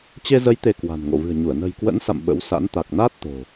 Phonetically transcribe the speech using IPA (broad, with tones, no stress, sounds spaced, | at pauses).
t͡ɕ e˧ z ə˨˦ j t̪ e˧ k w a̤˨˩ n ŋ o̰˧˨ v ɨ̤˨˩ ə̯ ɲ u˧˩ ə̯ n ə̤˨˩ j k w ə̰˧˥ n s a̰˧˨ m ɓ ə̰˧˥ w s a̰˧˥ n t̪ a˨˩ k̚ n a˦˥ t̚ t̪ o̤˨˩